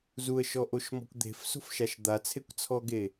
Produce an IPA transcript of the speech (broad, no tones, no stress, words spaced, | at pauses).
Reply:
zuə̯ʃɔʔoʃmɔ̤kʷ d̪e̤fso̤fʃaʃ d̪at͡sʰekʷt͡sʰɔɡe